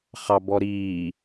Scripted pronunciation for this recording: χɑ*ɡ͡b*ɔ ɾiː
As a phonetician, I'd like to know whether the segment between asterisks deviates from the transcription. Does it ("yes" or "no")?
yes